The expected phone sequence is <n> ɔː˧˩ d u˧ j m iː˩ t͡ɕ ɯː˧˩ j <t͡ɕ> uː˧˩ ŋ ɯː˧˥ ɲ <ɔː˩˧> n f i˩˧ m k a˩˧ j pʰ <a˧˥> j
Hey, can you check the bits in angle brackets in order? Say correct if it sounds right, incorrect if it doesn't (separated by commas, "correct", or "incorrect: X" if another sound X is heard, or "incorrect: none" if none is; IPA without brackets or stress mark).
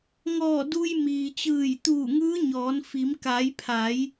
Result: incorrect: ŋ, incorrect: t̪, correct, incorrect: a˩˧